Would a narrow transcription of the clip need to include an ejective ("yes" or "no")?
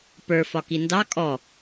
yes